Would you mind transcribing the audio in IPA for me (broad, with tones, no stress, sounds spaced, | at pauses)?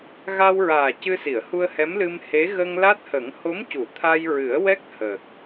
ɣ a˧ w ɹ aː˨˩ c ɨ˧ s i˨˩˨ ə̯ h u˧ ə̯ h ɛ˧˥ m l ɨ˧ m h e˧˥ ɣ ə˧ ŋ l a˦˥ t̚ h ə˨˩˦ ŋ h o˧˥ m c u˨˩˨ t̪ʰ a˧ j ɹ ɨ˨˩˦ ə̯ w ɛ˦˥ k̚ h əː˨˩ k̚